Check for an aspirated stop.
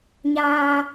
absent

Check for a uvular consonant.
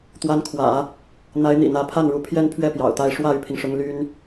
absent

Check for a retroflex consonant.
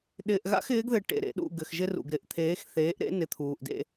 present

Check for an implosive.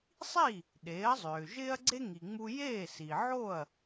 present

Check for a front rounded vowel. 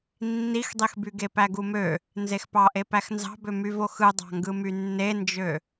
present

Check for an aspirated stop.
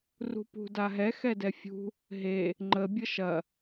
absent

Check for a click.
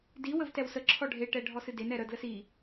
present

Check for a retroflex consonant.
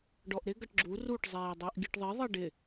present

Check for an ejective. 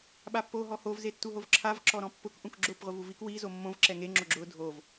absent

